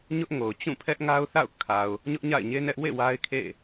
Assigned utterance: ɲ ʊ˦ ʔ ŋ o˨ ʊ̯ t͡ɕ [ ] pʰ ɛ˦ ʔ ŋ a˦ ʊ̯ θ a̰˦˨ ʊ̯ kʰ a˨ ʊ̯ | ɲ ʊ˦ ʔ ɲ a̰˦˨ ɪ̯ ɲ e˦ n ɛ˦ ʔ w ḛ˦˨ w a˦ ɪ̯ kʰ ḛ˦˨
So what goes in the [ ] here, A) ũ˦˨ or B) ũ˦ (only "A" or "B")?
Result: A